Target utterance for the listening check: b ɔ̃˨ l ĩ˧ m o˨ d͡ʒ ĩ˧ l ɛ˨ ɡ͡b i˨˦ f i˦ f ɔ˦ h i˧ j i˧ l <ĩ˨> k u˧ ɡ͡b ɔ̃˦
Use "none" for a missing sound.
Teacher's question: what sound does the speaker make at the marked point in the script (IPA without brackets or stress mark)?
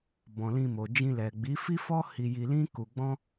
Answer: ĩ˦